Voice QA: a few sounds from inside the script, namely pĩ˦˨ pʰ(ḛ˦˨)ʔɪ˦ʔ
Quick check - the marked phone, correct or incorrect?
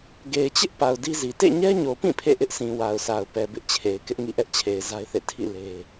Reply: correct